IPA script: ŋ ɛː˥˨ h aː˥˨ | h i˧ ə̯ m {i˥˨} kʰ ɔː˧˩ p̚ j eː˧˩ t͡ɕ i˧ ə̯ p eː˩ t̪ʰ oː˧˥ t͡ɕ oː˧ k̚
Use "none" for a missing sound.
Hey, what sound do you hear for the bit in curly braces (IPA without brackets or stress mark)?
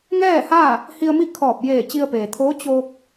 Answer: i˥˨